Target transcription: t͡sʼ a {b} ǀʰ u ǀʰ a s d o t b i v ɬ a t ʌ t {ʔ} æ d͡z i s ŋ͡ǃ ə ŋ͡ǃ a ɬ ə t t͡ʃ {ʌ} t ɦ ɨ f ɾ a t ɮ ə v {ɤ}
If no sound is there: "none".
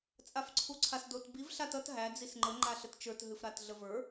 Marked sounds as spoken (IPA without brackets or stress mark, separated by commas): f, ɦ, ə˞, ə˞